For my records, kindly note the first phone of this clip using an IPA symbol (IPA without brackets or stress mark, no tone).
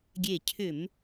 ɡʲ